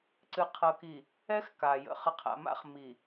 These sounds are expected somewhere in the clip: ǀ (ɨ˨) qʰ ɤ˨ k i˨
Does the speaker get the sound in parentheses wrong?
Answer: no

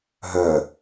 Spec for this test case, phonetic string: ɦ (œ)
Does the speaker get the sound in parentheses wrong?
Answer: no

